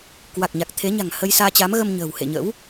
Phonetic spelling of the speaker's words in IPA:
k w a˨˩ k̚ ɲ a˨˩ k̚ t̪ʰ e˨˦ ɲ a̤˨˩ ŋ h ə˧ j s aː˧ t͡ɕ a˨˦ m ɣ ə˧ m ɲ ə̤ː˨˩ w h ḛ˧˨ ɲ ə̰˧˥ w

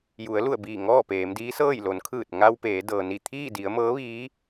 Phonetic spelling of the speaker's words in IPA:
j u˩˧ ə̯ l u˧˩ ə̯ b iː˧˩ ŋ ɔː˥˨ p eː˩˧ m d iː˧˥ s ɤː˥˨ j l o˩˧ n kʰ ɯː˧˩ t̚ ŋ a˧ w p eː˩˧ d ɤː˩ n i˧˩ t̪ʰ iː˥˨ d i˩˧ ə̯ m ɤː˧˥ ʋ iː˧˥

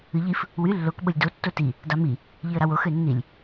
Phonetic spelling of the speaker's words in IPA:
ɯ ʎ i f | w y lː o k ɓ o lʲ d o tː o t i | d ɑ m i | ʎ i ə̯ ɾ ɑ w o x ø nː i lʲ

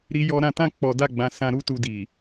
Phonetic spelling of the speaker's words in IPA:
ɾ i˦ j ɔ˦ ɾ ã˧ t ã˦ k͡p ɔ˧ d a˦ ɡ͡b ã˧ s ã˧ ɾ u˦ t u˧ d i˨

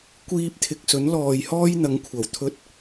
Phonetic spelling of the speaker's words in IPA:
kʷ iː˧ p̚ t̪ʰ ɪ˨ k̚ s ɵ˨˥ n l ɔː˨ j h ɔː˥ j n̪ ɐ˨˧ ŋ kʷʰ ɐ˨˩ w t̪ʰ ɵ˧ t̚

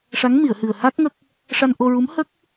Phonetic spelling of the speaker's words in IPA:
ʂ a˧˥ ŋ m i˨˩˨ ə̯ h ɨ˨˩ ə̯ h a˦˥ k̚ ŋ ə˦˥ k̚ | ʂ a˧ n ʔ o˧ ɹ u˧˥ m h ə˦˥ k̚

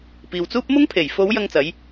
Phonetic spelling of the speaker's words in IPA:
p iː˨ w t͡s uː˥ p̚ m ʊ˥ ŋ pʰ e˨˩ j f o˨˧ w j ɐ˧ ŋ t͡s ɐ˨˧ j

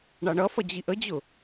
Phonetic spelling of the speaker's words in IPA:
ɳ ɑ ɳ ʌ f ʌ d͡ʑ i ʔ ə d͡ʑ ʊ

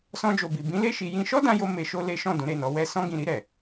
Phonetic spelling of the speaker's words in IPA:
s ɔ̃˧ d͡ʒ o˨ b i˨ b ĩ˨˦ l e˦˨ ʃ i˧ j ĩ˦ ʃ ɔ˦ d ã˧ j o˧ m e˧ ʃ o˦ l e˦ ʃ ɔ̃˦˨ d ũ˨˦ ɾ e˦˨ n ɔ˨˦ w ɛ˦˨ s ɔ̃˧ ɡ ĩ˨ ɾ i˧ ɾ ɛ˨

